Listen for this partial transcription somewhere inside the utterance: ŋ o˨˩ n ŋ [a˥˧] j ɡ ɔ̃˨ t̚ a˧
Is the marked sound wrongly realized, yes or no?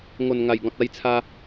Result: yes